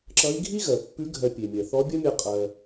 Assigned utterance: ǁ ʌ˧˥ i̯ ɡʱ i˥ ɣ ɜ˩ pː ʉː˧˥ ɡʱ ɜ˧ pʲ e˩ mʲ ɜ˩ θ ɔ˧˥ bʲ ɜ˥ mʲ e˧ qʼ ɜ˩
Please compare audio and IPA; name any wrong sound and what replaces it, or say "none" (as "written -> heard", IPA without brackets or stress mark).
ʉː˧˥ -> ʉ˧˥